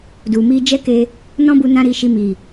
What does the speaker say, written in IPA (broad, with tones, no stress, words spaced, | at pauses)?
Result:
du˨mi˧d͡ʒɛ˦ke˧ | nɔ̃˦bu˧ nã˦ɾi˧ʃi˧ mi˨